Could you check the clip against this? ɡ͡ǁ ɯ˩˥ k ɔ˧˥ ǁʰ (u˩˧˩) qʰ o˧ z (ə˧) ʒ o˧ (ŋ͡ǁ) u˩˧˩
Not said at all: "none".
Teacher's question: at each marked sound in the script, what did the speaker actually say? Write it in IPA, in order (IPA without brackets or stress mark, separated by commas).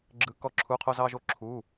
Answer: u˩˧˩, ɑ˧, ǁʰ